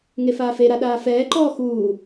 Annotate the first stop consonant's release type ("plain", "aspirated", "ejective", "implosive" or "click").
implosive